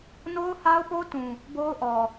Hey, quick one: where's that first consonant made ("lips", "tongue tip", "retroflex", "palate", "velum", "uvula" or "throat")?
tongue tip